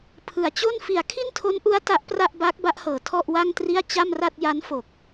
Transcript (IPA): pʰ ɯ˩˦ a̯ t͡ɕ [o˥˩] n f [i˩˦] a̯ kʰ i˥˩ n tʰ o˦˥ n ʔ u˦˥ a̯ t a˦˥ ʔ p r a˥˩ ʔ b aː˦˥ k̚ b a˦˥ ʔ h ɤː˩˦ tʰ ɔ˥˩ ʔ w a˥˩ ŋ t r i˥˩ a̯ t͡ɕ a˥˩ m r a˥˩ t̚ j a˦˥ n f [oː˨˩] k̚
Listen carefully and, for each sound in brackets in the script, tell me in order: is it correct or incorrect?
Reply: correct, correct, incorrect

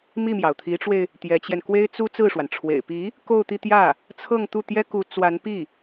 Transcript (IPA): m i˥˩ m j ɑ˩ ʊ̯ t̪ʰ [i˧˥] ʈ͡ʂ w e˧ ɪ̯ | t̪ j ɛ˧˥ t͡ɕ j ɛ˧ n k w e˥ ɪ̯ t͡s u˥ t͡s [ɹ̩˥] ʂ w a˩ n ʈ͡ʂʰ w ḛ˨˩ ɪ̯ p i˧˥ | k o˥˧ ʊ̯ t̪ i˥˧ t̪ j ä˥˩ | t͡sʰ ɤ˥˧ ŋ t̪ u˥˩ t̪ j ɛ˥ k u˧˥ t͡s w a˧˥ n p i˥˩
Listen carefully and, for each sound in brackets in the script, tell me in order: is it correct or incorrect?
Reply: correct, incorrect

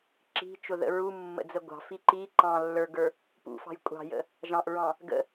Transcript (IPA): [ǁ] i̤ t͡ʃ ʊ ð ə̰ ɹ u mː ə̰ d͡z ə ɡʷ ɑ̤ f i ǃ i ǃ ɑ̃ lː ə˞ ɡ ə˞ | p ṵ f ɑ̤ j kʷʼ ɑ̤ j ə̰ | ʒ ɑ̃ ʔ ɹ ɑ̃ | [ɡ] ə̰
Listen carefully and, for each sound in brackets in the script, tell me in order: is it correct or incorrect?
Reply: correct, correct

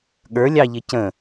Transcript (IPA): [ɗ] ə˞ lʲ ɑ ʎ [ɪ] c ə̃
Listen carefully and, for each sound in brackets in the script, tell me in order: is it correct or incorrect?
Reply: incorrect, correct

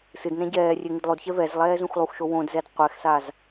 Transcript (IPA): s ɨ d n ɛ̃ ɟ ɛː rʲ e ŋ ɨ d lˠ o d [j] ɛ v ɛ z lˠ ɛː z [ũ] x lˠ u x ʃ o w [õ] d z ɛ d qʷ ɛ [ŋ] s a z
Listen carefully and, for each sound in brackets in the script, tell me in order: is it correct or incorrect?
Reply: incorrect, correct, correct, incorrect

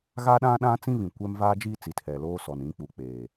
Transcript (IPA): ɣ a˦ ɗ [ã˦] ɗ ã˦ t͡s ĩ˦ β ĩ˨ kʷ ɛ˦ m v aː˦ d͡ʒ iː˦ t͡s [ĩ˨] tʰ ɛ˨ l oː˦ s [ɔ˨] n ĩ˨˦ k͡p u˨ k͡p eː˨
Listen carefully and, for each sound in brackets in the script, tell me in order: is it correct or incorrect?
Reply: correct, incorrect, correct

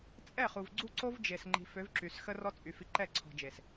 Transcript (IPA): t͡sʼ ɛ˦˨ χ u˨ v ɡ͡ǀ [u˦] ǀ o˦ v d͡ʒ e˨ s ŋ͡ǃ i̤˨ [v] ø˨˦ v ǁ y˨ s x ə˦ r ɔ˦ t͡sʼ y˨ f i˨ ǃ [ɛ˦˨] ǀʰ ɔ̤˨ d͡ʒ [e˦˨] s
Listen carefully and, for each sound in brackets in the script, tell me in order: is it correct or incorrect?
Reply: correct, incorrect, correct, incorrect

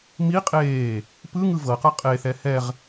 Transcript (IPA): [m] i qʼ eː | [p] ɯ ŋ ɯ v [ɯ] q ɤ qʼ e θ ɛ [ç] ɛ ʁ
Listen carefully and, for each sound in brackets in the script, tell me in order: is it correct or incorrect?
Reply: correct, correct, incorrect, incorrect

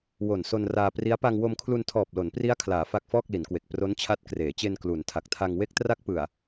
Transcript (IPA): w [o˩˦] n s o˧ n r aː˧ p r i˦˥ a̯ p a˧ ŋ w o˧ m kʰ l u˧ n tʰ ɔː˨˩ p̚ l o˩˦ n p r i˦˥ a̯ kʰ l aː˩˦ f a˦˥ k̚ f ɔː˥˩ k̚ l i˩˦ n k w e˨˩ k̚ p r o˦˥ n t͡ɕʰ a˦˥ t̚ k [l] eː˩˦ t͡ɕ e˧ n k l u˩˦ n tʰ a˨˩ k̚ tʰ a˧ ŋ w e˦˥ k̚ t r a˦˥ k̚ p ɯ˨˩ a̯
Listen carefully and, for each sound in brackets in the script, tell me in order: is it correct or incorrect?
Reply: incorrect, incorrect

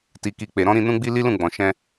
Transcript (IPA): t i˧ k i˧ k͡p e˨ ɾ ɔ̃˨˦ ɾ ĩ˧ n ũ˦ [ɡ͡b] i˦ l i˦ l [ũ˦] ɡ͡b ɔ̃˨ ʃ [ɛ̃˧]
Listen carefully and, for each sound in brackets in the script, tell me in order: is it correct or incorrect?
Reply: correct, incorrect, correct

